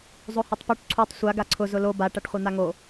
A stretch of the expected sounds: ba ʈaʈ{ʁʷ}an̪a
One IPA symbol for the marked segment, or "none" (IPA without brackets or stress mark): χʷ